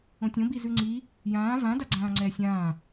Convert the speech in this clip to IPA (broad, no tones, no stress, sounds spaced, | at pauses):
õ tʲ õ b i z ʉ ŋ͡ǀ i | j ãː v ã d a ɡ͡ǀ ãː ŋ͡ǀ ɛː sʲ ãː